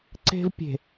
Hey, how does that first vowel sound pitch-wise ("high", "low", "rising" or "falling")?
high